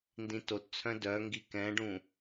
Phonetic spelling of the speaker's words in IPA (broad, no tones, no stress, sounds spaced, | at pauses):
n d ĩ t o t t͡sʰ œ̃ d œ ŋ ɡ i k ɛ̃ ɖ ũ